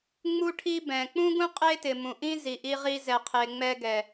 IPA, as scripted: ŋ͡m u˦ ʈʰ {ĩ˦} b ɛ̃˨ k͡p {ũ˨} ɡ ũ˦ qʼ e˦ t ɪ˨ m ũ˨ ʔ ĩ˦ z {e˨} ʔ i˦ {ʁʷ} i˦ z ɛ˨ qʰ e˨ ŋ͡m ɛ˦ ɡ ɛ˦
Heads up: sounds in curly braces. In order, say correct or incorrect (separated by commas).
incorrect, incorrect, incorrect, incorrect